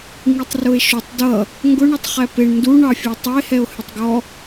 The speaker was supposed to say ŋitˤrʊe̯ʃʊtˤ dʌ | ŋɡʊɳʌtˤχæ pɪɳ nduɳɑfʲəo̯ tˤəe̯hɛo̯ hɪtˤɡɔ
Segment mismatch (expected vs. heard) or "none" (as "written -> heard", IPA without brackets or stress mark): none